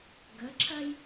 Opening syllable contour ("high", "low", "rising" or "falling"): rising